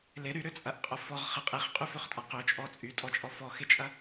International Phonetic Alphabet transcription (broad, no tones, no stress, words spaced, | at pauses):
lɪ ɾyɾʏt͡sʼɐʔqʼʊ fɔʁχɪ qʼiχqʼyføχtʼa qøt͡ʃʼɔ t͡sʼytʼɔt͡ʃʼɔ fɔxɪt͡ʃʼɐ